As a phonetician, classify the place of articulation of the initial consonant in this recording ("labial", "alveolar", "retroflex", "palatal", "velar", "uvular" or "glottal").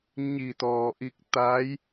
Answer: palatal